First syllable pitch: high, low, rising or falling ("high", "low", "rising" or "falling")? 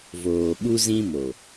low